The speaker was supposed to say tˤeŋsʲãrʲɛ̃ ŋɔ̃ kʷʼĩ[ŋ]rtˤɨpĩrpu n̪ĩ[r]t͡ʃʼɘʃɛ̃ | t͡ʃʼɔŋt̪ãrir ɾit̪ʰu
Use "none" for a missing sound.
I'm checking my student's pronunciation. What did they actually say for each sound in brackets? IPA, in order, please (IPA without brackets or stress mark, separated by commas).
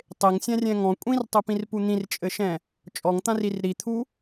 none, r